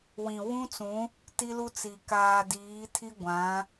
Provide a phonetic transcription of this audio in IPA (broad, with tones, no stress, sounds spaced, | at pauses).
w ĩ˨ w ũ˦ t͡s ũ˨˦ | t i˦ l u˦ t͡s i˨ k aː˨ d iː˨˦ tʰ i˦ ɡʷ ã˨˦